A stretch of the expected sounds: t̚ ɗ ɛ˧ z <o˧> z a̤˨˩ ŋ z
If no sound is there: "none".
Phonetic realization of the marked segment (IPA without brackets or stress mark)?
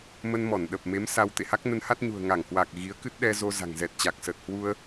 o˧